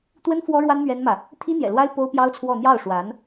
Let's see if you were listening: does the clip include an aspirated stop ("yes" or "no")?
yes